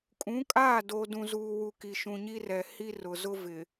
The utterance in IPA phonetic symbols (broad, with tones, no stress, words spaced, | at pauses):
kʼũ˨˦kʼaː˦˨ do˨dũ˨zuː˨wu˨ ki˨ʃũ˨ɲi˦rɛ˨ hi˦rʊ˨ zʊ˦vɪ˨